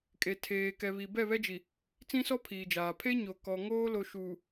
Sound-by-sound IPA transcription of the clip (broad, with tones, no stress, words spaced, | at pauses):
kʼe˨tʰeː˨ kɛ˨βi˨ bɛ˦˨βɛ˦d͡ʒi˨ | t͡sĩ˦sɔ˦ pʰiː˨d͡ʒaː˨ pʰe˦ɲo˨kɔ˨ŋoː˦ lo˦ʃuː˨